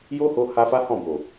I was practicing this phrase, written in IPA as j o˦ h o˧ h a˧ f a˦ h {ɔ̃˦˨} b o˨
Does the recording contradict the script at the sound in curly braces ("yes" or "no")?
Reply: no